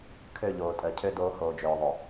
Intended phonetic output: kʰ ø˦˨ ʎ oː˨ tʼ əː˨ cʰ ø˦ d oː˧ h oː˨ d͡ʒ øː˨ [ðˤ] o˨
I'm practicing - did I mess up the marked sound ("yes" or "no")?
no